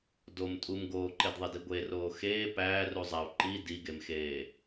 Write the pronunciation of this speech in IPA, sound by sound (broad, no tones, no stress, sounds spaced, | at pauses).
d o m tʼ u m ɡ oː ǃ e d ðˤ e d i ɡʷ e r oː x eː p æː r u zˤ æ u̯ ǃ i d i ɡ e m x eː